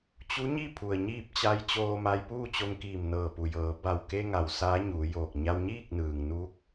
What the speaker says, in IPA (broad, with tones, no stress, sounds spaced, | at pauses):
t͡ɕ u˧˥ ɲ i˥˨ pʰ u˩ ə̯ ɲ iː˥˨ p̚ t͡ɕ a˧˥ j t͡ɕ oː˧ m a˧ j p uː˥˨ t͡ɕ o˧ ŋ k iː˧˩ m n ɤː˧˩ p u˩ j ɤː˩˧ b a˧˩ w k e˧ ŋ a˩ w s aː˧˥ ɲ uː˩˧ j oː˧˩ k̚ ɲ a˧ w ɲ iː˥˨ k̚ n ɯː˩ ŋ n uː˧˥ k̚